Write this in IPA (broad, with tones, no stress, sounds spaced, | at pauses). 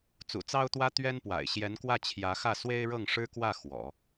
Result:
t͡s ṵ˨˩ t͡s ɑ˥ ʊ̯ t̪ w ä˥ t̪ ɥ ɛ˥ n p w a̰˨˩ ɪ̯ ɕ j ɛ˧˥ n k w ä˥˩ t͡ɕʰ j ä˧˥ x ä˥˩ s w e˥ ɪ̯ ɻ ɤ˥˩ ŋ ʂ ɻ̩˥ k w ä˥˩ x w ɔ̰˨˩˦